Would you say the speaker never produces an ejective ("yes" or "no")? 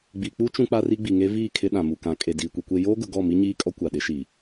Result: no